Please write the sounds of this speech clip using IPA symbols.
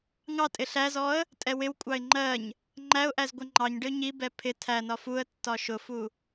ŋ ɑ tʼ ɪ ɬ æ z ɔ ə̯ | tʼ ɛ w ɪ w kʷʼ ɑ ɪ̯ ŋ͡ǃ ɜ ɲ | ŋ͡ǃ æ ʊ̯ ʔ æ z ɡʷ ɛ ŋ͡ǃ ɑ ɲ ɖ ɪ ʊ̯ ɲ i b ɛ pʰ ɪ tʰ æ n ɒ f u ə̯ tː ɒ ʃ ʊ f u

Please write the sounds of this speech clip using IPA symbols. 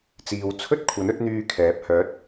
t͡s iː˨ w t͡sʰ ɵ˥ t̚ kʷʰ ɐ˨˥ n ɵ˨˥ t̚ n̪ yː˧ kʰ ɛː˨˥ p̚ h œː˨˥ t̚

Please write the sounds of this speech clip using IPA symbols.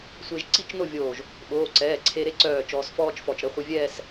sʷ e˧ ʒ ǀ i˥˧ t͡ʃ n o˥˧ vʲ oː˧˩ ʒ | ɓ oː˩˧˩ ǀ ɛː˩˧˩ ǀʰ e˧ ɾ e˥˧ ǀ œː˧˩ t͡ʃ ɔː˧ s f ɔː˥ t͡ʃ f ɔ˧˩ t͡ʃ ɾ ə˨˥ χʷ i˧ vʲ ɛː˥˧ s

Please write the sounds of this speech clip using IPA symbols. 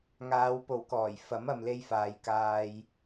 ŋ aː˨˧ w p o˨ w k ɔː˨˩ j f ɐ˨˥ m ɐ˨ m l e˧ j f aː˨ j k aː˧ j

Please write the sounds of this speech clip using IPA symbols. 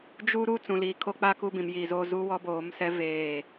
d͡ʒ u˦ ɾ u˦ t͡s ũ˨ l iː˨ kʰ o˦ k͡p a˦ k u˦ b ĩ˨ m j iː˨ z oː˦ z u˦ w ɔ˦ b oː˨˦ m s ɛ˦ v eː˦˨

